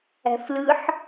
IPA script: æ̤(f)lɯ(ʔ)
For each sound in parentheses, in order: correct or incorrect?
correct, incorrect

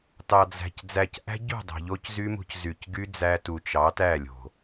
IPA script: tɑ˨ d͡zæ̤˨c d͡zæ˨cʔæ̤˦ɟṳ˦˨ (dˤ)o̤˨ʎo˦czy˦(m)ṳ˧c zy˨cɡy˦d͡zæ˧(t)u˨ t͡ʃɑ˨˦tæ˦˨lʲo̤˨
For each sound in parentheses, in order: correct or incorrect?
correct, correct, correct

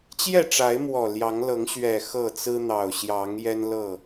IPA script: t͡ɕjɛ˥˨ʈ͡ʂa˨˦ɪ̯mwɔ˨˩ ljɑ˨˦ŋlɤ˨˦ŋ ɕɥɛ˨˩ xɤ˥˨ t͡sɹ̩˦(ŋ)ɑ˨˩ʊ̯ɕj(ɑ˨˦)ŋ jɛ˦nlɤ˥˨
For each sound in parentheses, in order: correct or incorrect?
incorrect, correct

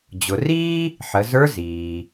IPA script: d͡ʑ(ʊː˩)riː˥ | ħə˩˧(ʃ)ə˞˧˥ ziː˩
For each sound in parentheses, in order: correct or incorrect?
incorrect, incorrect

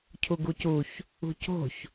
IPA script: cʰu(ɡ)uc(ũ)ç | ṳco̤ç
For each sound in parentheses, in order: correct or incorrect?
correct, incorrect

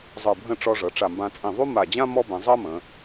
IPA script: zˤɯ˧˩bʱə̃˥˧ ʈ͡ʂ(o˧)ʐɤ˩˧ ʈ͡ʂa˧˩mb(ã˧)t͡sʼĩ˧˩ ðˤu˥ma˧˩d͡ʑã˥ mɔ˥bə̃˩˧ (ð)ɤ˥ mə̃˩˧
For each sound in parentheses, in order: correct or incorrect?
incorrect, correct, incorrect

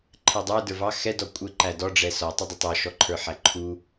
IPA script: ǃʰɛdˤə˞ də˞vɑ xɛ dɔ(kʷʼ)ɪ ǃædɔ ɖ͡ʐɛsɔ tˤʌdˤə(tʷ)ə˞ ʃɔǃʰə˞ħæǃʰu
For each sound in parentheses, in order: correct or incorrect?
correct, incorrect

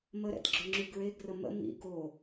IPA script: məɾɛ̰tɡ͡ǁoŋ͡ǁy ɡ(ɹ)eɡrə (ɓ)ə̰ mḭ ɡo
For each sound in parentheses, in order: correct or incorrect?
correct, incorrect

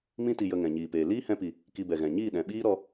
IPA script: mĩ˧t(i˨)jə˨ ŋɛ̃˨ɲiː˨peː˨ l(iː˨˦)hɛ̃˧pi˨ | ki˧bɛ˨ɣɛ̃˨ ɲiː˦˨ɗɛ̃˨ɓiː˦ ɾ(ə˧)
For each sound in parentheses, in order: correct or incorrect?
correct, incorrect, incorrect

